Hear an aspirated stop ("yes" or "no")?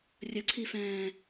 yes